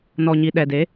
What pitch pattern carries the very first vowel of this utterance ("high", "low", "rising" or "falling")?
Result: low